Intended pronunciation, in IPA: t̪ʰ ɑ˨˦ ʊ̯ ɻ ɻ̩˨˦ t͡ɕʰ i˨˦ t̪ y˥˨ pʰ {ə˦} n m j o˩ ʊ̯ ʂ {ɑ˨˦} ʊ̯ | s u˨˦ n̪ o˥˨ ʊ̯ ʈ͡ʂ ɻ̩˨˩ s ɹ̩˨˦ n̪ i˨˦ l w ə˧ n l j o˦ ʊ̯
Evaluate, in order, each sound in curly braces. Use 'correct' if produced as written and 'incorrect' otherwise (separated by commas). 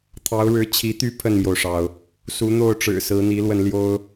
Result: incorrect, incorrect